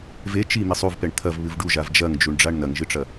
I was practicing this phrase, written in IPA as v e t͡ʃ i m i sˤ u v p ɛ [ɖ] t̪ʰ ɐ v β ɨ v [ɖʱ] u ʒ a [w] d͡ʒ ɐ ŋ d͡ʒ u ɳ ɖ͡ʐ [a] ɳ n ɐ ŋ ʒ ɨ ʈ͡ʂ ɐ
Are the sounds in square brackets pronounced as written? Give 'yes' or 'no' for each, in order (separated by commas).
no, no, no, yes